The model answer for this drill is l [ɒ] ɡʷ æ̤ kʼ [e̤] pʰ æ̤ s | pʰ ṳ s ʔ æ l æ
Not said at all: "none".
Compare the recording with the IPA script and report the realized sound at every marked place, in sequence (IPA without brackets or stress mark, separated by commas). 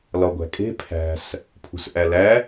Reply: ɒ, e̤